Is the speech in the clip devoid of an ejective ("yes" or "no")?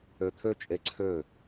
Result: no